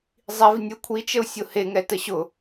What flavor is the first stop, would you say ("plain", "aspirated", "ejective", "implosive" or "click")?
aspirated